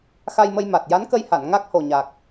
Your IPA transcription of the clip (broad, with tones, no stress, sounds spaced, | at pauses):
x a˧ j m ə˧ j m a˨˩ t̚ j a˧˥ n k ə˧ j h a˨˩˨ n ŋ a˦˥ k̚ h o˨˩ ɲ a˨˩ k̚